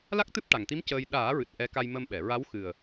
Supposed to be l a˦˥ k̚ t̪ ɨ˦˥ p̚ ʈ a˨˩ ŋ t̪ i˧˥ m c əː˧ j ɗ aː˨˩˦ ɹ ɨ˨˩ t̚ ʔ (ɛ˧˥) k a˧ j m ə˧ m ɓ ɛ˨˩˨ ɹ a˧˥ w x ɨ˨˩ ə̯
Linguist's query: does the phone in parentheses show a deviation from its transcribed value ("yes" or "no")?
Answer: no